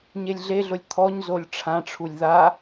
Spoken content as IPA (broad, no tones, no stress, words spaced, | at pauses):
ɲelʲɮeɮʊlʲ t̪ʰɔɲzolʲ ʈ͡ʂʰãʈ͡ʂʰulʲ ða